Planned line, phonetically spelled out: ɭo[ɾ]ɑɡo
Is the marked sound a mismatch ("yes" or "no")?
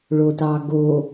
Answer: yes